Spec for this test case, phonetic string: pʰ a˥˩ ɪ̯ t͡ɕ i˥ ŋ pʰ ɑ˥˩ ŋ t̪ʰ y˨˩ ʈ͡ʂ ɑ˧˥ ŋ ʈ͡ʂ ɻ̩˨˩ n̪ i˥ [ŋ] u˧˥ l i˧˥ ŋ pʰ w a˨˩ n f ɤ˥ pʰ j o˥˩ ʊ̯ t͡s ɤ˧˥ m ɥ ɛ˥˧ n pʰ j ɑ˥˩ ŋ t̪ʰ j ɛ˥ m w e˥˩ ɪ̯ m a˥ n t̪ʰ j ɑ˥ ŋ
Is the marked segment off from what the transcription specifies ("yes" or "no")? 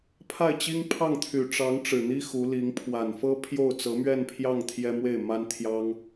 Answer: yes